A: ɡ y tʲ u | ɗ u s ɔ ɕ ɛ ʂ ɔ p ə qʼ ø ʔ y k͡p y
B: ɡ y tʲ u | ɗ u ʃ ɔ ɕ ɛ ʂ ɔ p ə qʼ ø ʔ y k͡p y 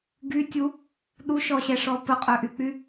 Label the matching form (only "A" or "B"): B